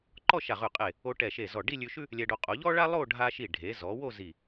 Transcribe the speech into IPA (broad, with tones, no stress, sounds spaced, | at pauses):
ǃ ɔ˥˧ ʃ a˧˩ ʁ ʉ˧˩ qʼ e˧˩ | o˧ ʈ ɛ˧˩ ʃ e˧˩ z ɔ˧˩ ɖ i˥˧ lʲ ʉ˧ ʃ ʉ˥ | lʲ ɛ˧ ɖ o˧ qʼ o˩˧ ʎ ɔ˥ ɭ a˥ lˠ o˥˧ ɖʱ a˧ ʃ i˧˩ ɖʱ e˩˧ z ɔ˩˧ w o˥˧ z i˧˩